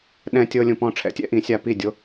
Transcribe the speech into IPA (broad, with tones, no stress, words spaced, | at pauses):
ɗɛ̃˧tʲɤ˧ lʲũ˩pɔ̃˥˩ʈ͡ʂʰɛ̰˩˥tʲɛ̰˥ ʔĩ˩˥sʲa˧ pi˥˩ dʲo˥